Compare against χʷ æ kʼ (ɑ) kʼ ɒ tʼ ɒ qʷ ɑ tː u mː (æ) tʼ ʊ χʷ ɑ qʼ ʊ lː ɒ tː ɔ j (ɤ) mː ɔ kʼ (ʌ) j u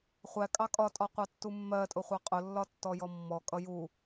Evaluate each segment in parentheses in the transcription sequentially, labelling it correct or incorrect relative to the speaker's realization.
correct, incorrect: ɜ, incorrect: ɔ, correct

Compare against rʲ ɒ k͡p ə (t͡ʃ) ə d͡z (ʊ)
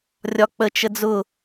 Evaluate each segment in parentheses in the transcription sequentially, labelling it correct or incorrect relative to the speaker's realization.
correct, correct

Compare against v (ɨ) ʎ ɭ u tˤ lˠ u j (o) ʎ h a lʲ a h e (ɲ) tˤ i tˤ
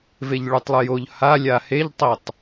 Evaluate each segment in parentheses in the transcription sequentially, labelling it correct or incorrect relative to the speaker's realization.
incorrect: e, correct, incorrect: ʎ

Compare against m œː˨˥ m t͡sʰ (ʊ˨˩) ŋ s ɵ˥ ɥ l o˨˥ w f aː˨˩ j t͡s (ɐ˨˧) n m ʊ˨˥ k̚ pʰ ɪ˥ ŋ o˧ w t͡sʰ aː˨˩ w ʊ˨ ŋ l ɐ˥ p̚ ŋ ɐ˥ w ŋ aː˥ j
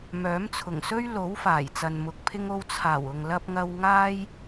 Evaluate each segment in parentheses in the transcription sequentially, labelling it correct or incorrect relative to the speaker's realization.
correct, incorrect: ɐ˨

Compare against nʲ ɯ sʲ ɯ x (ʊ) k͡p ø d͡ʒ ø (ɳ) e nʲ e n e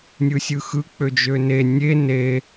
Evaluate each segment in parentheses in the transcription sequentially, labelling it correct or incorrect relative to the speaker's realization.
incorrect: ɯ, incorrect: n

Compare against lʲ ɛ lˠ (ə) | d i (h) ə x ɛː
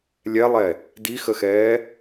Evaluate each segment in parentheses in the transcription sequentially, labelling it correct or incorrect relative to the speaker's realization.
incorrect: ɛ, incorrect: x

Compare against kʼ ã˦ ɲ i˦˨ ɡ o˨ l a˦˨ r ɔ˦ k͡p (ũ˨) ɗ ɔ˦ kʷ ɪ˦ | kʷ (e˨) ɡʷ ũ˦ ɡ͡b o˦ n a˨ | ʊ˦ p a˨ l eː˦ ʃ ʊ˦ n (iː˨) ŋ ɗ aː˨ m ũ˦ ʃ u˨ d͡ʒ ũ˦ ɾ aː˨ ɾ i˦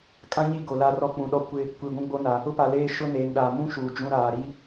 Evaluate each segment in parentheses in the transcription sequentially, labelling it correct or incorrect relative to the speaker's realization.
correct, incorrect: i˨, incorrect: eː˨

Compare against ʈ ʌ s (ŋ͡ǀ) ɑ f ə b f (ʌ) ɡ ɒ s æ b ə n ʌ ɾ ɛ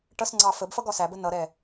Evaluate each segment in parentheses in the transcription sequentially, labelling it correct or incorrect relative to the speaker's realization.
correct, correct

